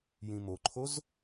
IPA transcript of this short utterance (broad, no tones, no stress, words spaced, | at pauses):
jĩmoǃʰoz